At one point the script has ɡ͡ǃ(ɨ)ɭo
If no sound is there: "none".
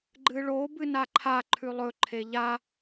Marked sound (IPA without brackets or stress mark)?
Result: ɨ